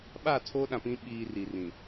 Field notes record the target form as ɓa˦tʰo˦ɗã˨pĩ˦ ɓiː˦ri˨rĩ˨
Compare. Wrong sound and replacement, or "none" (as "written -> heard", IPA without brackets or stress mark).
a˦ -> a˦˨